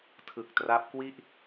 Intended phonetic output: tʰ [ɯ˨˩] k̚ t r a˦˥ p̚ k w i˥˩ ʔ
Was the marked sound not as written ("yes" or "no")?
no